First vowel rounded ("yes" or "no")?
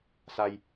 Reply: no